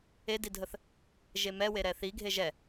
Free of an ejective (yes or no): yes